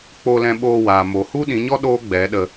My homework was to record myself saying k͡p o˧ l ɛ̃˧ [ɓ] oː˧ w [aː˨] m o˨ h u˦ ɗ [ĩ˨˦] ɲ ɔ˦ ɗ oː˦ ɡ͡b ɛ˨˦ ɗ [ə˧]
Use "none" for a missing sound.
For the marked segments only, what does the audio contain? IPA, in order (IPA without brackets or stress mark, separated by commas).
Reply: ɓ, aː˨, ĩ˨˦, ə˧